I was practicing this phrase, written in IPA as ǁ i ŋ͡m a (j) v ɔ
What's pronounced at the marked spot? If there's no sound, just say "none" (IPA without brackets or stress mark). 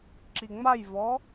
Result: j